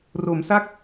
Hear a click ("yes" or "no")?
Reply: no